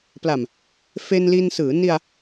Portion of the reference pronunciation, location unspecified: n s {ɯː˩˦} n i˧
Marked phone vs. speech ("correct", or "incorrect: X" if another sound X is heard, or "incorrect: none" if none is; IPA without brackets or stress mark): correct